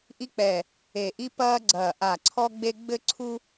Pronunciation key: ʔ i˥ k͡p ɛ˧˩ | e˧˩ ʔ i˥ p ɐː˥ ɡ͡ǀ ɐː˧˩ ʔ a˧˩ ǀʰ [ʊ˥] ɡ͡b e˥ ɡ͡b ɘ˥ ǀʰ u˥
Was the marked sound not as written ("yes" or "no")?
yes